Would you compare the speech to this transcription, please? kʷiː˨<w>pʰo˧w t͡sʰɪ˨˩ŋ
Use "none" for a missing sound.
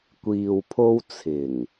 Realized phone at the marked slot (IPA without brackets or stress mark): w